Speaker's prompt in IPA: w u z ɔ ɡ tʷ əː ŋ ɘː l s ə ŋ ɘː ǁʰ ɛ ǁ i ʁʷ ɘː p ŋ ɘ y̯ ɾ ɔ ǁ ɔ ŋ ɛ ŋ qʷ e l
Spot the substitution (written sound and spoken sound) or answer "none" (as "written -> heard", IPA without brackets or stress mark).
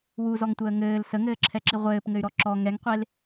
ɡ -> ŋ